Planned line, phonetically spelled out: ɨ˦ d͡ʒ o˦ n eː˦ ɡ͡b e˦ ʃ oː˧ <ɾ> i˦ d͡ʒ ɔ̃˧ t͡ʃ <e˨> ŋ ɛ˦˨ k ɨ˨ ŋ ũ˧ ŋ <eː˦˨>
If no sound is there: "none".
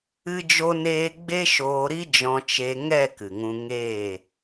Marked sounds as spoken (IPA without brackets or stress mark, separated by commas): ɾ, e˧, eː˦˨